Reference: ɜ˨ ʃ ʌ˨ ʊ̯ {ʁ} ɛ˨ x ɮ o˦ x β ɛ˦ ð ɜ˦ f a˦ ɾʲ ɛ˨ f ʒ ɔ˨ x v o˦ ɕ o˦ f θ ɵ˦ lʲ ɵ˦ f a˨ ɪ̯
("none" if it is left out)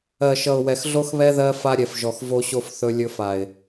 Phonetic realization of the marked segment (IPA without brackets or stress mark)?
w